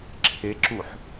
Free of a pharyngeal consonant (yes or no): no